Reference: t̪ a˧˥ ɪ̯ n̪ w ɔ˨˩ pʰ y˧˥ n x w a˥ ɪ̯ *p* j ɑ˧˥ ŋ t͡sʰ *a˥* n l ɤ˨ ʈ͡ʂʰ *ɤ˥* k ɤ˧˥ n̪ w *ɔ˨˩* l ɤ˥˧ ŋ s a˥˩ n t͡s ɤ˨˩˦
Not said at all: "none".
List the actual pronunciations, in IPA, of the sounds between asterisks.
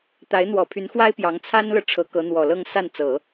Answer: p, a˥, ɤ˧˥, ɔ˨˩

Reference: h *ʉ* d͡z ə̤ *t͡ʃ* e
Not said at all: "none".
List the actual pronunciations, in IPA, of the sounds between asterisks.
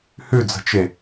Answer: ʉ, t͡ʃ

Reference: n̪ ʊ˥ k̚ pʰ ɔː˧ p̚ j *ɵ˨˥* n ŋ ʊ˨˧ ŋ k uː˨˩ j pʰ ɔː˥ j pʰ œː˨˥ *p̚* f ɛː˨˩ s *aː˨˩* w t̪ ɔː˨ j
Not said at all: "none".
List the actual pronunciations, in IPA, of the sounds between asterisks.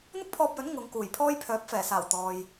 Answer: ɵ˨˥, p̚, aː˨˩

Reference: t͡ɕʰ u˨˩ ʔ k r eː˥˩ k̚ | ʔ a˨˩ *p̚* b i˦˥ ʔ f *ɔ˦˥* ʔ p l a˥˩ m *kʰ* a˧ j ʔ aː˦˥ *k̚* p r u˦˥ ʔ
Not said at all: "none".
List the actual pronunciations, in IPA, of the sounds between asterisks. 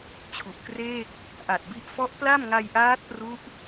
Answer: t̚, ɔ˦˥, ŋ, t̚

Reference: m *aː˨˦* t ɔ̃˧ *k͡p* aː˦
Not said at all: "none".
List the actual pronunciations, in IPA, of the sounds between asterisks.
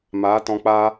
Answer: aː˨˦, k͡p

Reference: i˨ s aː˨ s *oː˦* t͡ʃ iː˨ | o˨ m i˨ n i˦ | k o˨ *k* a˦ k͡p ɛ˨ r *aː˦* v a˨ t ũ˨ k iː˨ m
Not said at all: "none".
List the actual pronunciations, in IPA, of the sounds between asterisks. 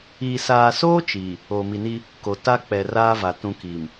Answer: oː˦, t, aː˦

